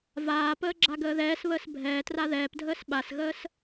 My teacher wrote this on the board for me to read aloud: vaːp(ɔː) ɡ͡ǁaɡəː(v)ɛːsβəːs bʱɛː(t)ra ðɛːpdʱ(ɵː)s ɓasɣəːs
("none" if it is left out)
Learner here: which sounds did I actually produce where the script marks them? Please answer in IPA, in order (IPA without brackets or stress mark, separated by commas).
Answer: əː, ð, t, əː